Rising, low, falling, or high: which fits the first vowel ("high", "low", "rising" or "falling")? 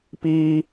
high